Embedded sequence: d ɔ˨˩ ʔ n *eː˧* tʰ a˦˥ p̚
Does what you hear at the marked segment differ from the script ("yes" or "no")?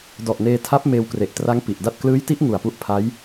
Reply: no